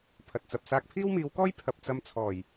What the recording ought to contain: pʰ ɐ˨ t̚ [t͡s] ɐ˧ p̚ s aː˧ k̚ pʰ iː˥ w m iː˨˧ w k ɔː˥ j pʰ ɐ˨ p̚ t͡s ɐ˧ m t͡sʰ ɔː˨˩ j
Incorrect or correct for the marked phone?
correct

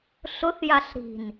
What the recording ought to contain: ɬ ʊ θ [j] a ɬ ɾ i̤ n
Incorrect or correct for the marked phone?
correct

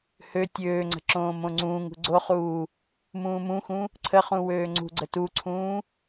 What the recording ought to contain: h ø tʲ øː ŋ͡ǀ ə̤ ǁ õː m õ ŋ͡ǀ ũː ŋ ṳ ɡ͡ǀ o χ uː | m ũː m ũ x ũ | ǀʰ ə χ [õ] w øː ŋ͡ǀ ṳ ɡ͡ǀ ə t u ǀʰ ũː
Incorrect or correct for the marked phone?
incorrect: ũ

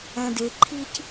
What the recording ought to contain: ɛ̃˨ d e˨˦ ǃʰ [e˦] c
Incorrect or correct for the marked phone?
incorrect: i˦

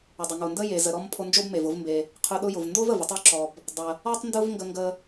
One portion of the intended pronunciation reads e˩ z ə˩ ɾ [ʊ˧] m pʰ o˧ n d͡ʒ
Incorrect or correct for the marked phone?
incorrect: ɔ˧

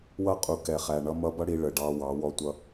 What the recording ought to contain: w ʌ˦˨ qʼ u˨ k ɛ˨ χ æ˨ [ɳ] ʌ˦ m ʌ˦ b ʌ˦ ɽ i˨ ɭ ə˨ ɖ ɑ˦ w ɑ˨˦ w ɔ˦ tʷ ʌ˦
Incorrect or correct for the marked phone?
correct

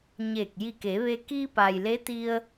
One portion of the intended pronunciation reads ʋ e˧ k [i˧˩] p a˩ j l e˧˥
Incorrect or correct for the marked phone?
incorrect: i˧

